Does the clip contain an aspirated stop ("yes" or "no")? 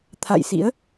yes